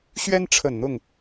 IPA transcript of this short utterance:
ɕɥɛ˦nʈ͡ʂʰə˨˩nn̪ʊ˥˨ŋ

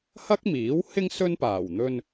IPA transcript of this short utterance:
hɐ˥k̚miː˨˥whɪ˥ŋ sɵ˥npaː˨˩wn̪ɵ˧n

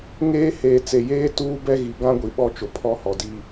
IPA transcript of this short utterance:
ŋeː˦ heː˨t͡se˨jeː˦ tuː˦bɛ˦ɣi˨ ɡã˦ɡʷi˨ ɓɔ˦t͡ʃʊ˨ pʰɔ˦hɔ˨ di˨

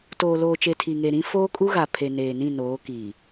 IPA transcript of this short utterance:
toː˨loː˨t͡ʃe˨ tʰi˨ŋe˨ ɾĩ˦ foː˦kʼu˦ɣa˨ pʰe˨ neː˨nĩ˦˨noː˨˦kiː˨

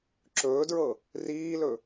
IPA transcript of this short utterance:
ǁɵːdɹɤ | riːlɵ

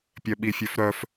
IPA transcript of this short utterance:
pʲœɓifʲøfɾœf

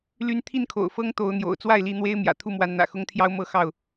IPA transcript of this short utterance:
ly˨˦nt̪ʰi˥˨nkʰo̰˨˩ʊ̯ fɤ˦ŋt̪o˨˦ʊ̯ n̪jo̰˨˩ʊ̯t͡swa˥˨ɪ̯li˨˦n̪we˦ɪ̯ mjä̰˨˩t̪ʰu˥˨mwa˨˦nn̪ä̰˨˩ xʊ˦ŋt̪ʰjɑ˦ʊ̯mɤ˥˨xɑ˥˨ʊ̯

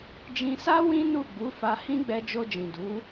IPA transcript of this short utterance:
d͡ʒĩ˧sa˦ wĩ˦nu˦˨ɡ͡bu˨˦ fa˧hĩ˦ ɡ͡bɛ˧d͡ʒo˧d͡ʒĩ˨du˨˦

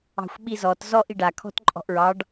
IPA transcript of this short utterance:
ɑ̤xʷɓizɔt zɔ ʔiɖa kʰɔ̤tǃʼɔ̤ʔɹɑɖ

